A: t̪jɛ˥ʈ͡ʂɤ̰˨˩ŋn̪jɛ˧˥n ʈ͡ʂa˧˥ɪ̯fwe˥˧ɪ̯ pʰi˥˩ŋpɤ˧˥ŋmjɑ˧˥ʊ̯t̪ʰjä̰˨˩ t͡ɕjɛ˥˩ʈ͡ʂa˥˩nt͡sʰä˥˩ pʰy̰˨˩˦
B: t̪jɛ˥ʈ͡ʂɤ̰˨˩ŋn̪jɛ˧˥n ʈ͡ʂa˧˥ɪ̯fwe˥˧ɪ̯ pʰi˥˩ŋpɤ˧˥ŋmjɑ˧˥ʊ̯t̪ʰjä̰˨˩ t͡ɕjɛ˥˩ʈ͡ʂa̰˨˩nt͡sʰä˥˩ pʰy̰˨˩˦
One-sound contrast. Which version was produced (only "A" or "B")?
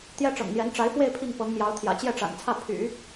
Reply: B